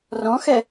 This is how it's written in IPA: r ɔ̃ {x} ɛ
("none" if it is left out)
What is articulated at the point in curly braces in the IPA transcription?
x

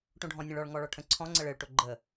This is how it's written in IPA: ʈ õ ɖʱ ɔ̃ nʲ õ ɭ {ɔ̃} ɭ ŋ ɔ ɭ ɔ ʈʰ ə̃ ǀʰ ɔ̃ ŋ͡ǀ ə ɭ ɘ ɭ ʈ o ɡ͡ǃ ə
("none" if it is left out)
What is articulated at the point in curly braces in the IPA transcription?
ɔ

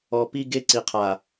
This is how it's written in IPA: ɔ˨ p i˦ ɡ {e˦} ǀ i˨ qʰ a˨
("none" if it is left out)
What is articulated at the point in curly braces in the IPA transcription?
e˦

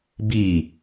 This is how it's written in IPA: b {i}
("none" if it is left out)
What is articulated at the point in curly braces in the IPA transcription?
i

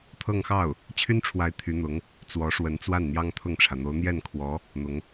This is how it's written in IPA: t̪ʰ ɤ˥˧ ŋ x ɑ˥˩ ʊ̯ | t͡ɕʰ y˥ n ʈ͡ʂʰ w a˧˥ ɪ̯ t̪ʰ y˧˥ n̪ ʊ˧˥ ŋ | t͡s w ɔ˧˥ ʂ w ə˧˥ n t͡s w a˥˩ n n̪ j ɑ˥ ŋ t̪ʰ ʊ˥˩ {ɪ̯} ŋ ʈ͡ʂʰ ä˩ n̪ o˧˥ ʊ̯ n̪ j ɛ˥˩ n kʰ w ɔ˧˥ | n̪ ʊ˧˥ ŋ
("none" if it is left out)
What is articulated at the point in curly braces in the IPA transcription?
none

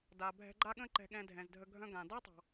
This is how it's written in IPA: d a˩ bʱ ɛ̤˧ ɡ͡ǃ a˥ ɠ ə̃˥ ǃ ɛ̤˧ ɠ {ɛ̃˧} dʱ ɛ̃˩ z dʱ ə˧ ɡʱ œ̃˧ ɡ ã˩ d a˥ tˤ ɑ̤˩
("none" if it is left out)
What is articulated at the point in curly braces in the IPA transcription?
ɛ̃˧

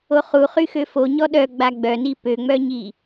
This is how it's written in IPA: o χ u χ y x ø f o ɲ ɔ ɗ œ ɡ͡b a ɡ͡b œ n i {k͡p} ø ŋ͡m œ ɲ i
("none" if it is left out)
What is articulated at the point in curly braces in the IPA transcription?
p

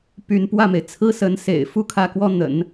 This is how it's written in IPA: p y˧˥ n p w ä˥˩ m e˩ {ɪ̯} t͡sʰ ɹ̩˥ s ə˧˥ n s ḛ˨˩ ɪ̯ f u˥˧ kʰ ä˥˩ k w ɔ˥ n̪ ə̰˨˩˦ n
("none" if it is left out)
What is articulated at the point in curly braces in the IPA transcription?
ɪ̯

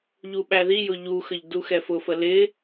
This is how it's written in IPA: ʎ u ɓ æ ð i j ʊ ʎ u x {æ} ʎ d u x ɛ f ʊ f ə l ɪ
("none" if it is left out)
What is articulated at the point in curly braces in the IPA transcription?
ə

